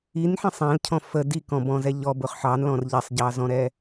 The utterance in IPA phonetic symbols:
i n ħ ĩ sˤ æ̃ l cʰ ɔ̃ f ə d i k ɔ̃ b ɔ̃ z ɛ ʎ ɔ b ʊ χ ħ ɑ n l ɔ̃ r ʎ ɛ sˤ ɟ ɑ z ɔ̃ ɾ ɛ

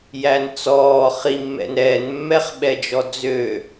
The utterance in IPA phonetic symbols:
j æ n t͡s ɔː χ i mː ɛ̰ n ɾ ɛː n mː ɛ χ ɓ ɛ d͡ʒ ɔ d͡z ø

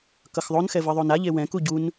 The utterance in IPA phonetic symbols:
k ʌ x ðˤ o n x ɛ v ɯ ðˤ o n a ʎ e w ɛ̃ k u ɟ u n

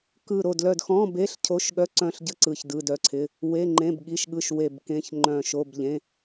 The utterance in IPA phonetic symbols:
k ɯ˦˨ ɾ o˦˨ d l œ˦˨ d x ɔ̃˧˥˧ b e˧˥˧ ɬ cʰ o˧˥˧ ʃ ɠ œ˧˥˧ ǀ œ̃˦˨ ɬ ɟ ə˧˥˧ ǀ ɯ˦˨ ç d ɯ˧˥˧ d œ˧˥˧ ǀʰ ɪ˧˥˧ | w e˧˥˧ ŋ͡ǃ ẽ˧˥˧ b ɠ i˧˥˧ ʃ ɠ ɯ˧˥˧ ʃ w e˦˨ b k ẽ˧˥˧ ç ŋ͡ǃ œ̃˦˨ ʃ o˧˥˧ b ʎ ẽ˧˥˧

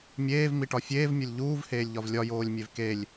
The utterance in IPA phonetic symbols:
mʲ eː v m i ʈ ɒ fʲ eː v mʲ o lʲ ʎ uː v h eː lʲ ʎ ɒ v lʲ ɒ j oː lʲ mʲ e v k e lʲ

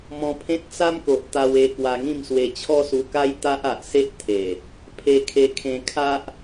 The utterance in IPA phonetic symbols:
m ɔ̃˧ pʰ ẽ˦ t̚ t͡s a˦ m k o˨ ʔ t̪ a˧ w e˧ k w a˧ ŋ ĩ˥˧ m s w e˧ t͡ɕʰ ɔ˦ s u˧ k a˦ j t̪ a˦ ʔ a˨ ʔ s e˦ ʔ t̪ʰ e˨˩ | pʰ e˧ kʰ e˧ kʰ ẽ˧ kʰ a˦ ʔ

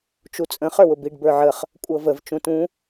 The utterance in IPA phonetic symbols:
t͡ʃ u t͡sʼ ə̃ χ ə˞ w ʊ b i ɖ b ə˞ ʕ ə χ | kʷʼ ɤ v ə v t͡ʃ ũ t ũ

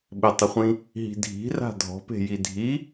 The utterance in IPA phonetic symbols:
ɓ ɪ tˤ ɪ χʷ ĩ | ɦ i̤ dʱ i̤ r a̤ dʱ ɔ̤ p e̤ j i dʱ i

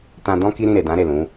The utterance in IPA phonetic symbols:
t ã˧ d ɔ̃˦ k i˦ ɾ ĩ˦˨ ɾ e˨ d ã˨˦ ɾ e˦˨ l ũ˨˦

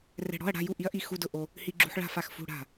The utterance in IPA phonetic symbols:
r ɛ̤˧ ɽ ɔ̤˧˥˧ ɐ̯ ɽ a̤˧˥˧ j u˥˩ ʔ i˦˥ ɐ̯ ʔ i˥˩ x u˧˥˧ d ʊ˥˩ ʔ o˧ | h i˧ ɡ͡ǁ ṳ˧ ħ ɭ a̤˥˩ f a˥˩ x f ṳ˧˥˧ ɽ a̤˥˩

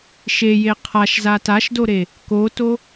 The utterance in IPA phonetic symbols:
ʃ e j e qʰ a ʃ z a t a ʃ d o ɾ e | k o t o

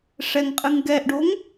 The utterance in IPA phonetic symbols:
ʂ ɛ ŋ qʼ ɨ ŋ ɡ ɛ ʔ ɖ o ŋ

